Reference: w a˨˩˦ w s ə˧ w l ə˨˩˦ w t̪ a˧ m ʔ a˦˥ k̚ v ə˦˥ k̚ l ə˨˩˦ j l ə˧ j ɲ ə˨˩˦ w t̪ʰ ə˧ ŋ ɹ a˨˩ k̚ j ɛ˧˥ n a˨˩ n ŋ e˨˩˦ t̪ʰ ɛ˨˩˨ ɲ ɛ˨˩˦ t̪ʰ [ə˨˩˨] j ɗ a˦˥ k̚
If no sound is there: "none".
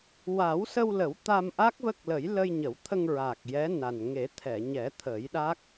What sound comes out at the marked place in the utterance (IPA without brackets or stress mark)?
ə˨˩˦